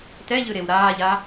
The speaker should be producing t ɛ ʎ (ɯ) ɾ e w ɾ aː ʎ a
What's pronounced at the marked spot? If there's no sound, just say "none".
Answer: ɯ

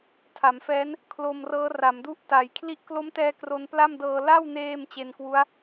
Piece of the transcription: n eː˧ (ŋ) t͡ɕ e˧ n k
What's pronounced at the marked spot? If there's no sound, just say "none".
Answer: m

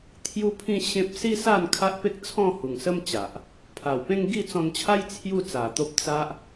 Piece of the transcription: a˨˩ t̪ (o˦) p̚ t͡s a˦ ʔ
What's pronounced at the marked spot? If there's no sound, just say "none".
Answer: o˦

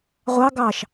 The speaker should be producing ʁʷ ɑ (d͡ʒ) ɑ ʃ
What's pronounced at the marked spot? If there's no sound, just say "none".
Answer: ɡ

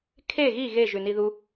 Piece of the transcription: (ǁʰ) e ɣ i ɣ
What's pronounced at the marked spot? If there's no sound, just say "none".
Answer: kʰ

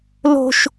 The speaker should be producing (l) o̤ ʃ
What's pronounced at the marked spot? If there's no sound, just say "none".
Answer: l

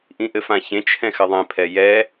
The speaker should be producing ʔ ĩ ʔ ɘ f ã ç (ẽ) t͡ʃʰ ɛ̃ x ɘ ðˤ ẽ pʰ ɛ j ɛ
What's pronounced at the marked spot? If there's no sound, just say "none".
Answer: ẽ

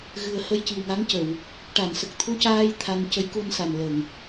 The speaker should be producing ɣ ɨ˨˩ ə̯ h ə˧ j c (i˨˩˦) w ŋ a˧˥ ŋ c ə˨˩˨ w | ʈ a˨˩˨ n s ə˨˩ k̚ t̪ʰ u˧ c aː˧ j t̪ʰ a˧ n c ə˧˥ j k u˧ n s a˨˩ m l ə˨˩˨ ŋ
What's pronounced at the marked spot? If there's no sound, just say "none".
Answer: i˨˩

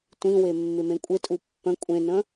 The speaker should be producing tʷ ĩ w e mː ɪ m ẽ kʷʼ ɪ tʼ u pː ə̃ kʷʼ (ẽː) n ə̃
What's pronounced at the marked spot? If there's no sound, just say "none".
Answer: ẽ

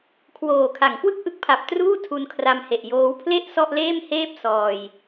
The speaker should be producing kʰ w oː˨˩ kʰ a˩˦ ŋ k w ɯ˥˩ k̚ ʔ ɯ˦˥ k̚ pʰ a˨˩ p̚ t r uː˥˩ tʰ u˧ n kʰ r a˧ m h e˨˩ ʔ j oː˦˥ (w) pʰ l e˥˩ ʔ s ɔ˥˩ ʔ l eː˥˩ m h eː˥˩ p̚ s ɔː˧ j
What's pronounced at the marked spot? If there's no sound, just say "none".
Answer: w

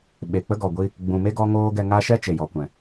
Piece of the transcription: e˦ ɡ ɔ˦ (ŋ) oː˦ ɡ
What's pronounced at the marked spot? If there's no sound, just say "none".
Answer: ŋ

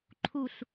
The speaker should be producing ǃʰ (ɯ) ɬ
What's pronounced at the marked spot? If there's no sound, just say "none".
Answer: u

